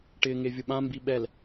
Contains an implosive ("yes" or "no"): yes